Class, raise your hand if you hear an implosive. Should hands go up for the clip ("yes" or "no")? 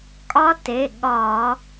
yes